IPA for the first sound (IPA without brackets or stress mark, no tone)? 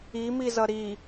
i